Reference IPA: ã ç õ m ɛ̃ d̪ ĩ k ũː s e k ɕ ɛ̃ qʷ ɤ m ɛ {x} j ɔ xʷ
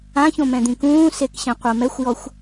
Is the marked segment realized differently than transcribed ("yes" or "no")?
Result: yes